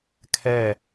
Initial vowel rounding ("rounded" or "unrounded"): unrounded